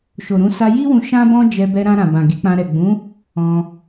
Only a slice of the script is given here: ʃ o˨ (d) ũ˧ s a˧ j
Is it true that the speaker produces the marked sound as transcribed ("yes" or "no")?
no